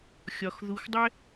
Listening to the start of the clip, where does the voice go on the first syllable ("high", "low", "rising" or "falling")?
low